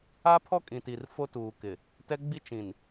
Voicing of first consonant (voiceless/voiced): voiceless